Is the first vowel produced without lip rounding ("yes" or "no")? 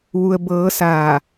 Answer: no